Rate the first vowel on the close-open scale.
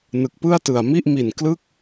close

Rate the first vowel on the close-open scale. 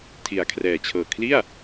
close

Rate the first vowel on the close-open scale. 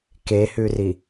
mid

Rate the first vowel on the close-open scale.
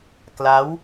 open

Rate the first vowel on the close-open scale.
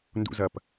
close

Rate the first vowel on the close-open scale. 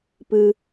close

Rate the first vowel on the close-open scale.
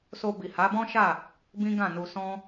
mid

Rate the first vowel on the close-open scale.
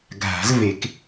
open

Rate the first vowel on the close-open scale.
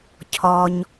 mid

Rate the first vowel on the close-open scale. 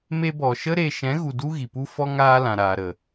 mid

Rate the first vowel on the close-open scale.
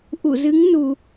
close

